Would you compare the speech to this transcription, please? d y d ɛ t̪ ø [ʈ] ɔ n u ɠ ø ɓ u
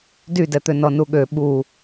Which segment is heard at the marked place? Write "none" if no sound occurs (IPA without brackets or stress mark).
n